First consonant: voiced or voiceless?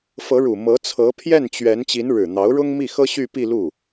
voiceless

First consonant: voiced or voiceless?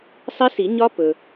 voiceless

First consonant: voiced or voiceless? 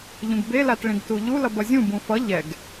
voiced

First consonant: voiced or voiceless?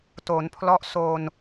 voiceless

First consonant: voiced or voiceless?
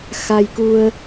voiceless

